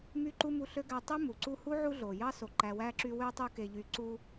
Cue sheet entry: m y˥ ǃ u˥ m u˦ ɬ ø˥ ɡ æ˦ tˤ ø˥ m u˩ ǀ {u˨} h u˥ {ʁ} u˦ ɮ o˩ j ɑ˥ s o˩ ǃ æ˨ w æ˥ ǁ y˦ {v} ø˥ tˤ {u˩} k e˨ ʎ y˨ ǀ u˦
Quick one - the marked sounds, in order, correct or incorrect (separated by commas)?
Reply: incorrect, incorrect, incorrect, incorrect